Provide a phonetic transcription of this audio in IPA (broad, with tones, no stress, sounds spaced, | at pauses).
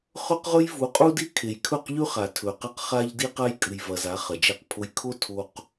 χ ɵ˦ q ʁ ɵ˦ j v u˨˦ qʼ u˦ d i˦ kʰ e˨ j kʰ ɵ˦˨ q ʎ ʉ˦ χ a˨ tʰ ɵ˨ q ɐ˦ q χ a˦ ʎ d i˦ q a˦ j kʼ ɨ˨ j v ɐ˨ z a˨˦ χ ɐ˨ d͡ʒ e˦˨ q pʰ o˦ j kʰ o˦ tʰ o˨ q